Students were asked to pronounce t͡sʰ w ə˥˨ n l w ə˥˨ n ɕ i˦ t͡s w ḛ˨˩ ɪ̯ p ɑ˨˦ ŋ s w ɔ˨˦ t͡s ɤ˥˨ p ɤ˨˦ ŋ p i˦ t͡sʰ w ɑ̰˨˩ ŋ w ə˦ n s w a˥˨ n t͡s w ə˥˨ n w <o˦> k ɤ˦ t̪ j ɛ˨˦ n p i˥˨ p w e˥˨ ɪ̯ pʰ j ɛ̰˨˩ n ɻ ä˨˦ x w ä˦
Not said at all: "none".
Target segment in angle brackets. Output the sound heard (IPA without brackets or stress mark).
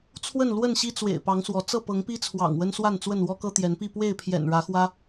ɔ˦